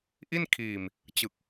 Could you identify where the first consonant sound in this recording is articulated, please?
glottal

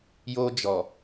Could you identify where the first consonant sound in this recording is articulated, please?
palatal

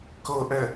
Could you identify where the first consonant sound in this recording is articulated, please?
velar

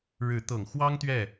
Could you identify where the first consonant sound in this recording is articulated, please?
retroflex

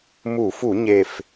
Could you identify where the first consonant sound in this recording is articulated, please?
labial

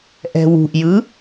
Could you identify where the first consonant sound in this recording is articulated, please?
glottal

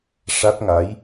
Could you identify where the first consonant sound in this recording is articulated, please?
retroflex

